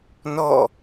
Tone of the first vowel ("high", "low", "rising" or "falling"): falling